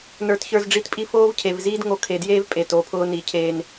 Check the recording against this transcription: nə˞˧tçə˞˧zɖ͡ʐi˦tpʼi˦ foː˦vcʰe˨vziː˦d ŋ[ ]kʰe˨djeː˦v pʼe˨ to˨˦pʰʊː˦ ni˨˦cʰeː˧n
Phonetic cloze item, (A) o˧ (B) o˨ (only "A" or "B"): A